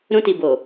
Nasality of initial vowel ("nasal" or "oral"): nasal